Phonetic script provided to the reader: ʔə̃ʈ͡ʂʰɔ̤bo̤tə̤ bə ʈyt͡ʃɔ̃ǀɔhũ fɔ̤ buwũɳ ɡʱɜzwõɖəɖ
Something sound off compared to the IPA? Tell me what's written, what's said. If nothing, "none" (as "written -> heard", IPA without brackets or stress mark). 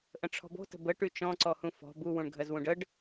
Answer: õ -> ũ